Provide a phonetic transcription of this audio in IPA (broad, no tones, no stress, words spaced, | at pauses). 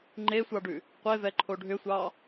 ŋ͡ǃesʷɑɖʉ | qʷevɛǃʰo ɖʱʏsʷɑ